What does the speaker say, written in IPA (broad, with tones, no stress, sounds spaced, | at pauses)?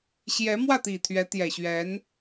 ɕ j ɛ˧˥ m w ä˥˩ t̪ i˨˩ t̪ʰ ɥ ɛ˧˥ t̪ j ɛ˨˩ ɕ ɥ ɛ˧˥ n